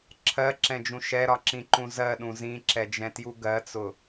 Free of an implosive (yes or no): no